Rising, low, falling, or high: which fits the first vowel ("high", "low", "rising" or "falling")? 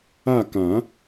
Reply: falling